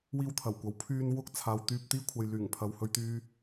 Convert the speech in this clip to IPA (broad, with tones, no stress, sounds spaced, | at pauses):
w iː˥ w t̪ʰ ɐ˨˩ w kʷ ɐ˨˥ w pʰ yː˧ n w ʊ˥ k̚ t͡sʰ aː˨˧ w t̪ yː˧ p̚ t̪ iː˥ kʷʰ ɐ˨ j l yː˨˩ ŋ pʰ ɐ˨ w h ɵ˧ ɥ t̪ yː˧